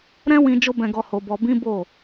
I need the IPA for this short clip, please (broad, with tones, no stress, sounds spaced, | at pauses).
ɾ ɛ̃˦ w ĩ˧ d͡ʒ o˧ b ɛ̃˨ ɡ ɔ˨ h o˧ b ɔ˧ b ĩ˦ b o˦˨